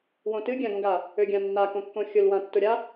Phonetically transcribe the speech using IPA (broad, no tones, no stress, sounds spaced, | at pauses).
w õ t ɨ ɡʲ ã ɡ õ ɡ a | ø ɡʲ ã nː a k õ kː õ xʲ ʊ l w ã tː ʊ ɾʲ a